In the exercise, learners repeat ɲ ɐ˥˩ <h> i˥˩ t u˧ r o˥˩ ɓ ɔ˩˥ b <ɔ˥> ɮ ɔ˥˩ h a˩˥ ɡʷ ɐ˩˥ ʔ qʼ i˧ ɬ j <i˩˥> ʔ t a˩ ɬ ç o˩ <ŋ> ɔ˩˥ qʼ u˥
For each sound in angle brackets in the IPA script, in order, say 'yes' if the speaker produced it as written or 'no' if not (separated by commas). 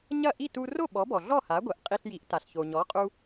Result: no, no, yes, no